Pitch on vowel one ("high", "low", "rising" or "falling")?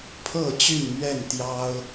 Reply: falling